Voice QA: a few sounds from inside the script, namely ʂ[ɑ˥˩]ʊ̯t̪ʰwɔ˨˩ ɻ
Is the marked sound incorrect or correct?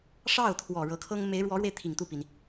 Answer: correct